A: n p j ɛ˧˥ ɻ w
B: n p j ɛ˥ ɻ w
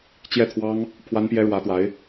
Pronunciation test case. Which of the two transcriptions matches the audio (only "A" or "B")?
B